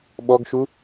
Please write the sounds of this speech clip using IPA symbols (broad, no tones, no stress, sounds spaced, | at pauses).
ɓ ɔ ɡ ʃ u